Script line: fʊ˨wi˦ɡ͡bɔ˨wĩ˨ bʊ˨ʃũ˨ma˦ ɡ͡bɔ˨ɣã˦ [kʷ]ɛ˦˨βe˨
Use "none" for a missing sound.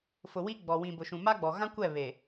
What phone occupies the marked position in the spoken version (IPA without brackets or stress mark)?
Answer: kʷ